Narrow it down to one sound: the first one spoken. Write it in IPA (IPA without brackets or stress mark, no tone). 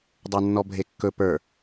dˤ